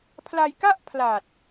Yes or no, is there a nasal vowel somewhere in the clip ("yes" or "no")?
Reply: no